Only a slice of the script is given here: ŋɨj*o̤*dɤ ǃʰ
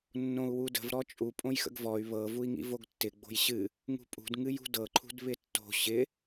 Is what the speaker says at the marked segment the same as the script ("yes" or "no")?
no